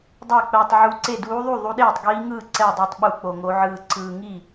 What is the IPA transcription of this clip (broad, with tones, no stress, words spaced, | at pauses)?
dˤa˥˩k͡pɛː˧tˤʕu˧˥ǀe˥˩ duː˧˥ðˤu˥˩ ðˤu˧˥ɗeː˥˩tˤɡiː˧˥ŋɯː˥˩ ǀɛ˥˩dˤa˥˩tˤ ɓu˥˩k͡po˧ŋo˧˥ ʕɯː˧ǀɯː˧ŋi˥˩